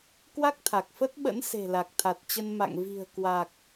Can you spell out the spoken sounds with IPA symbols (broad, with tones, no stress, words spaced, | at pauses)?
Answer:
kwa˦˥k̚t̪ʰa˨˩k̚fə˦˥t̚ɓə̰˧˥n se̤˨˩la˨˩k̚t̪ʰa˨˩t̚t͡ɕə˧n ma̰˧˨ŋvi̤˨˩ə̯ kwa˨˩k̚